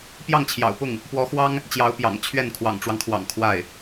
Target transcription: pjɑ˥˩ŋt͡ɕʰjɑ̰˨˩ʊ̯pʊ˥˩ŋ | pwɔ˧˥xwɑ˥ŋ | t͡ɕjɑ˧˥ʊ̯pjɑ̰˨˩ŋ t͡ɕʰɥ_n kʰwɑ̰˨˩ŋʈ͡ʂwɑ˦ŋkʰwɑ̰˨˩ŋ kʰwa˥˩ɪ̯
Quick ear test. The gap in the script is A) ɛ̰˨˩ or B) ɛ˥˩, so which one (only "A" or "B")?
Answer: B